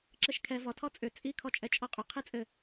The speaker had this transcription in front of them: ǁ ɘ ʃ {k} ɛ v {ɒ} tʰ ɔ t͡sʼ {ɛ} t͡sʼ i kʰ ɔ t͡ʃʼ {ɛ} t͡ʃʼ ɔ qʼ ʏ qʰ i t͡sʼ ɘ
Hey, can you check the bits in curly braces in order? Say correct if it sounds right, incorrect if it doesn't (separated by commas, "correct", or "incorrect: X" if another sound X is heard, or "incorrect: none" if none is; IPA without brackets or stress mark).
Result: incorrect: kʰ, correct, incorrect: ʏ, correct